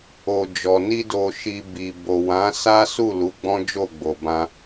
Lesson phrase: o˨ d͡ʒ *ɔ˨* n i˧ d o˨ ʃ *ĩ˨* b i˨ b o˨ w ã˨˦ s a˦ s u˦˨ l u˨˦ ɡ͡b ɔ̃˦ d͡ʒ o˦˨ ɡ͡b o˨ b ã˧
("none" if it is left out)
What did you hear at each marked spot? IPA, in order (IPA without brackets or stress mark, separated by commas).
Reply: ɔ˨, i˨